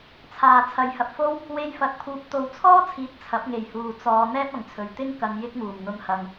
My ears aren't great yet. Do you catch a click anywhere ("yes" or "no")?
no